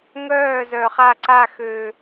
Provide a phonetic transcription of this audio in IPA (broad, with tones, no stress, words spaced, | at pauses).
ŋœː˦˨zœ˨χa˦˨ǀa˦˨ xø˨